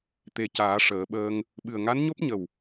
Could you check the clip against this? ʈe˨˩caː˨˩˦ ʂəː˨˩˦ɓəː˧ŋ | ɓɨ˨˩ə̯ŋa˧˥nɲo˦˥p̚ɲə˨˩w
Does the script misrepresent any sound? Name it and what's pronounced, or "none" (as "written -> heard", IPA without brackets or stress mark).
ʈ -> t̪